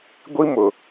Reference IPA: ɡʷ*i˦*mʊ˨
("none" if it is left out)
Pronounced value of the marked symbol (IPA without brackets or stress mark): i˦